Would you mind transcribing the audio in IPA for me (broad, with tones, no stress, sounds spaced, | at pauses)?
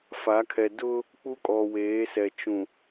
f a˨˦ kʰ ɛ˨ d ʊ˦ | k͡p u˦ kʼ ɔ˨ w eː˨˦ s ɛ˨ t͡ʃ ũ˨